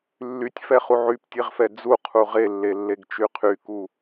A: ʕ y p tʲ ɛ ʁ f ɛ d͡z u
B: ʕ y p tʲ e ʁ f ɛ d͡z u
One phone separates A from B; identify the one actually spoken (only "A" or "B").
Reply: B